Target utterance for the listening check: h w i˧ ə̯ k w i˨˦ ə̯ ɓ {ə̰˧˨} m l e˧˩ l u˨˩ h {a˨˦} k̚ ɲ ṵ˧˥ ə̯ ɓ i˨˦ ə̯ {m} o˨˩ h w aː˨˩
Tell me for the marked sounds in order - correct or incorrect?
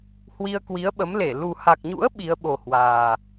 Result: incorrect, incorrect, incorrect

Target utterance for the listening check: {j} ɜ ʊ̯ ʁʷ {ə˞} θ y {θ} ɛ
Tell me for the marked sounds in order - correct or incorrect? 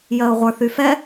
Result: correct, correct, incorrect

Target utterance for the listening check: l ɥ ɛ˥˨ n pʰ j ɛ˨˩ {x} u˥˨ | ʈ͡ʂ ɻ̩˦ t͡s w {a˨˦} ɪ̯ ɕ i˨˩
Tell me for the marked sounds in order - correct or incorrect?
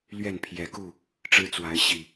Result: incorrect, correct

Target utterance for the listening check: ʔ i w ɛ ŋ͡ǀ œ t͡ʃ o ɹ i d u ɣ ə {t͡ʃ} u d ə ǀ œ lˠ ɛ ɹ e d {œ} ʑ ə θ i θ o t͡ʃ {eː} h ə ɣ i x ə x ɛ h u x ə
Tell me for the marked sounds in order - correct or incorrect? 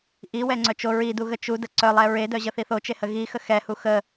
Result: correct, correct, incorrect

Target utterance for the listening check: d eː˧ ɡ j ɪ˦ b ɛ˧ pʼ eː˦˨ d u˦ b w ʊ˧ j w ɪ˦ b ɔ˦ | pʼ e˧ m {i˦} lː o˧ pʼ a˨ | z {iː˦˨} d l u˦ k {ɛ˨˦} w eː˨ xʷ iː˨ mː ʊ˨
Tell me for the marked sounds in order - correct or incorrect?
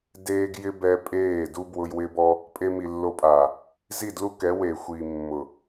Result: incorrect, incorrect, correct

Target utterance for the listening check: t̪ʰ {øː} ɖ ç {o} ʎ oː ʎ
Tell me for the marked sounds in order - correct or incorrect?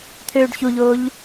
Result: correct, incorrect

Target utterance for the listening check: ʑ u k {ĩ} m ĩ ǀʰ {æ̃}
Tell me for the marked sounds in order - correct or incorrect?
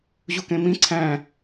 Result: incorrect, correct

